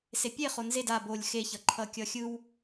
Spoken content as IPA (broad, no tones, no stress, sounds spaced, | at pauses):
s e pʲ e χ o n z e d a b o lʲ x e ç ʌ ǃʰ ʌ kʲ ʌ xʲ ɯ w